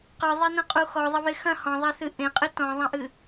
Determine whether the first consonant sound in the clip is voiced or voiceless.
voiceless